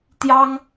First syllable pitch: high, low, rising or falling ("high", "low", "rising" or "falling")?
high